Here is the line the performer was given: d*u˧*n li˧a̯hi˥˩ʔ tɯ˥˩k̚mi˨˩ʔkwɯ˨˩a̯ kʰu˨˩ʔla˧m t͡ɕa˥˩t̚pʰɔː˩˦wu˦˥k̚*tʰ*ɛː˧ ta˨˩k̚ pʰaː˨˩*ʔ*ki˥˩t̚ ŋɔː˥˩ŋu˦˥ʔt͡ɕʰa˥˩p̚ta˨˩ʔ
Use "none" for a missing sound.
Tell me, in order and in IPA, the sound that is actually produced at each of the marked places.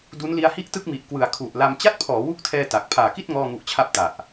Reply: u˦˥, tʰ, none

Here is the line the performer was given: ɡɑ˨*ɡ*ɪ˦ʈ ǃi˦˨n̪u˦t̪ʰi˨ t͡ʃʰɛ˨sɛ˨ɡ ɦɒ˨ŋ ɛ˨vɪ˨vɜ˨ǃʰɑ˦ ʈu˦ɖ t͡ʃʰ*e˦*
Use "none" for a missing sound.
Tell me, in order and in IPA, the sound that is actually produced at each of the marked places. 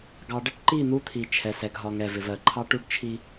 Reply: ɖ, i˦

